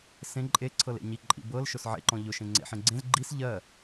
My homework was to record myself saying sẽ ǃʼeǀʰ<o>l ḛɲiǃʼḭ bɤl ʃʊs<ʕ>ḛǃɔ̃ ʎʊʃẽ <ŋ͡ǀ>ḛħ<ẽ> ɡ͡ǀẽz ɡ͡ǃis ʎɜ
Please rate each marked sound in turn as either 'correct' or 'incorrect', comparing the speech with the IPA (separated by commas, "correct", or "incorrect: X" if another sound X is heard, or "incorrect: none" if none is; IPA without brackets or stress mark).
incorrect: ɤ, correct, correct, correct